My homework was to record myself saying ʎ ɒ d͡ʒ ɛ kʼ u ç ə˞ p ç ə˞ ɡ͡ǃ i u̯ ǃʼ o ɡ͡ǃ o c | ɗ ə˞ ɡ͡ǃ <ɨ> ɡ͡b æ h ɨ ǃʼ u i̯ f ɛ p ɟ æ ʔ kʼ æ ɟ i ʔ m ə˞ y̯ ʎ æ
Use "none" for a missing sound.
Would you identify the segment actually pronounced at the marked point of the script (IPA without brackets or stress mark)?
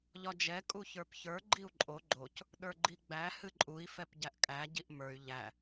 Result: i